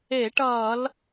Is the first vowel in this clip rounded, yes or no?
no